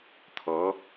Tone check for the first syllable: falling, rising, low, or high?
rising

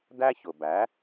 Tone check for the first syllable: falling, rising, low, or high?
high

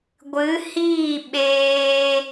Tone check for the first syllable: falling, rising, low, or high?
rising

